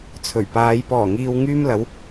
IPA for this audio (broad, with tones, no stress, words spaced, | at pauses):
t͡sʰɵ˨˩ɥpaː˨˧j pɔː˨˩ŋiː˨w ŋyː˧mlɐ˨˧w